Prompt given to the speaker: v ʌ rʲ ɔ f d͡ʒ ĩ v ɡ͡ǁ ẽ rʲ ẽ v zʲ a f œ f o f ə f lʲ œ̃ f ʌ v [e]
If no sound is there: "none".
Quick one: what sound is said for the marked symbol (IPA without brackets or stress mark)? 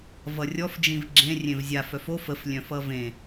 ẽ